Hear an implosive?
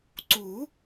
no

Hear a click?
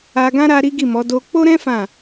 no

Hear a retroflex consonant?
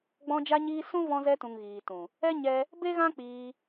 no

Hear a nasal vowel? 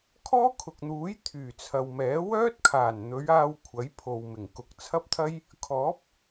no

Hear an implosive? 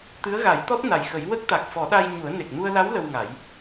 yes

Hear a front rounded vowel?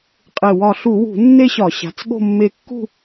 no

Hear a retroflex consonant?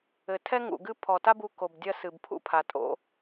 no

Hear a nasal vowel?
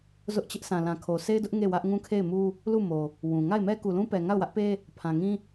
yes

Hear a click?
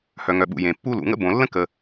no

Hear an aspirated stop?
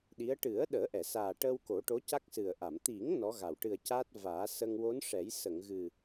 no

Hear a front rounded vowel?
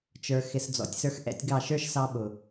no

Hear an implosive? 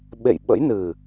yes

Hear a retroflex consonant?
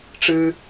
yes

